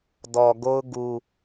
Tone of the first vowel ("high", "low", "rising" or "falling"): low